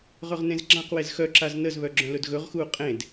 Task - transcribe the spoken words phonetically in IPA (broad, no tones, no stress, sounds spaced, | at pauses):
ʁ ɵ ʁ n ẽ z ɡ͡ǁ ã q w e z x œ ǁ a z n ə z β œ ɡ͡ǁ œ̃ l ɵ d ɣ ɵ ʁ x uː qʼ ẽ d